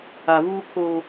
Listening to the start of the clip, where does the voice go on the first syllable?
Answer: low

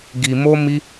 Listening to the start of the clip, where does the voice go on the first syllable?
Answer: low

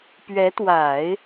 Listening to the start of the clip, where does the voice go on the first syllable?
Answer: rising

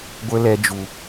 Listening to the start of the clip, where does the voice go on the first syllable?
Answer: high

